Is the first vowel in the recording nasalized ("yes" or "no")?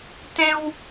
yes